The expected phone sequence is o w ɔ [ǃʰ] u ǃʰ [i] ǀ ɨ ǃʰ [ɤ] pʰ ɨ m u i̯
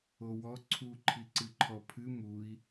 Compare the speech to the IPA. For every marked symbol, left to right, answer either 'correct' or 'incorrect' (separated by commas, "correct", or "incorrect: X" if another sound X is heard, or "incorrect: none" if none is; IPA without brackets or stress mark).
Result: incorrect: ǀʰ, correct, incorrect: ɔ